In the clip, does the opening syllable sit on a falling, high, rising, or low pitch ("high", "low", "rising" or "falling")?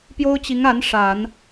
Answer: high